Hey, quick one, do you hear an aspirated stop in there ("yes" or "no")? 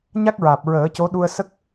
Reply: no